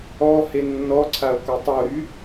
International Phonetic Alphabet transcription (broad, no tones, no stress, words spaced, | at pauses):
ɔ henːɔǀʰao̯ kotˤoɾy